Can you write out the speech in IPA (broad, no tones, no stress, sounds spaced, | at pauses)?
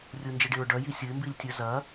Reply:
rʲ ʊ n d͡ʒ i ɖ e ɹ ɖ œ j i sʲ ə ɪ̯ m b i lʲ tʲ œ z ɐ